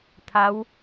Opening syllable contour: rising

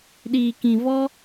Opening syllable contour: low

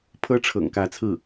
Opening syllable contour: high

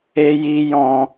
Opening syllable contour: high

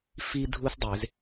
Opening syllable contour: high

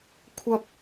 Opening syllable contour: high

